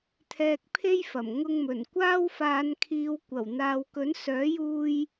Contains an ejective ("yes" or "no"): no